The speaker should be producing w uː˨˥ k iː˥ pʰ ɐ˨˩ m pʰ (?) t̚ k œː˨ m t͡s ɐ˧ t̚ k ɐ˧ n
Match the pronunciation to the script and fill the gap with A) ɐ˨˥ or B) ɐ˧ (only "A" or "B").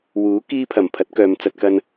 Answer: A